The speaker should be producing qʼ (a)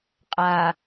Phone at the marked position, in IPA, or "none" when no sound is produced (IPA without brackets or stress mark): a